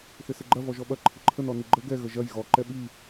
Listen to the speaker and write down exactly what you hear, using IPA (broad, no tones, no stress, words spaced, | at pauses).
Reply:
θɪsɪɡ͡ǃɐ vɔʒɔɓɐ ǃʰɪǃʰən ɔniɡ͡ǃə ɡɛ ɣəʒɐj ɣɔ ǃɛɓi